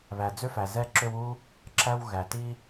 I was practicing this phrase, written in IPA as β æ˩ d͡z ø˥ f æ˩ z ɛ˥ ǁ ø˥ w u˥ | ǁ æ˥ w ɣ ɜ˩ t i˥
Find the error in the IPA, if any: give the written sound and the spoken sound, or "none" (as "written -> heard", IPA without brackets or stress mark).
ɜ˩ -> æ˩